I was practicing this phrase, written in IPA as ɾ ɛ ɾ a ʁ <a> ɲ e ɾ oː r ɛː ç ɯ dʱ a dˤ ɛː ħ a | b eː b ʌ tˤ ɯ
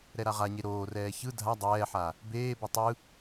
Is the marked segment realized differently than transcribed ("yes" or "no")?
no